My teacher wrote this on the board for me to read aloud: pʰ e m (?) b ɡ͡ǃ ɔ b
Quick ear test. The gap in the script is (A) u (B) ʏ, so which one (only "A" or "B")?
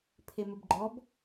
B